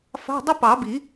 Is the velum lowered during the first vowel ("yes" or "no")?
no